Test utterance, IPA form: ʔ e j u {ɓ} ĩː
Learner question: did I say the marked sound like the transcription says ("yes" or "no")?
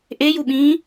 yes